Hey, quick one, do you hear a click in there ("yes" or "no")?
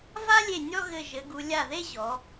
no